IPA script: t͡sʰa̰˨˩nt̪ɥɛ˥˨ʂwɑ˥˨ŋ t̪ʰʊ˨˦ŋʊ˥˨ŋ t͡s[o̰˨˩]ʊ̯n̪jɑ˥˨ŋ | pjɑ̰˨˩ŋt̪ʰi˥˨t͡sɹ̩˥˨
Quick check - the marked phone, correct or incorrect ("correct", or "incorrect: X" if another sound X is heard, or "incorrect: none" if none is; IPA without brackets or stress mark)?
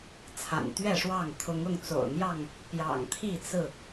correct